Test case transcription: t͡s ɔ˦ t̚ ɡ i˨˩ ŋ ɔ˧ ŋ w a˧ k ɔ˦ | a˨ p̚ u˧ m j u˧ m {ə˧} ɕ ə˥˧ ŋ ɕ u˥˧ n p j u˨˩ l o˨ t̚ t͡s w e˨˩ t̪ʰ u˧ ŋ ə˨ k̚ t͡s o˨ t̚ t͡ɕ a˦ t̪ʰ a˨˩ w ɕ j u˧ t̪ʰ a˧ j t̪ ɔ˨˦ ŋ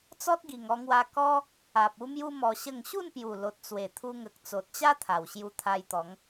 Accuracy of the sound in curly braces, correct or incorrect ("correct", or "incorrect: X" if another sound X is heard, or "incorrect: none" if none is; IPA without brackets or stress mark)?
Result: incorrect: ɔ˧